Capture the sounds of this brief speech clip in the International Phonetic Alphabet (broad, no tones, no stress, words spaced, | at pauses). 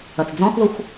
ɐt͡sd͡zɔ̃xðoxʷ